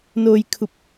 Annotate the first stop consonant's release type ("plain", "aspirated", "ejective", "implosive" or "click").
aspirated